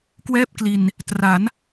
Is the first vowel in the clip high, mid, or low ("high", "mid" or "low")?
mid